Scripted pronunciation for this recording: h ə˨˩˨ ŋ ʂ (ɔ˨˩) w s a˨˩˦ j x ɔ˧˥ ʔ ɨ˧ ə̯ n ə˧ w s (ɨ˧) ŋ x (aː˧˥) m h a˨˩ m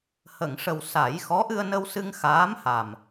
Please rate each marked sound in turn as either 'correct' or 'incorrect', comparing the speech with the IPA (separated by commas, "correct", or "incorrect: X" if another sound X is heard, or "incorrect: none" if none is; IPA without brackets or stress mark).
incorrect: ə˨˩, correct, correct